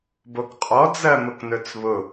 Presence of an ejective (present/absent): present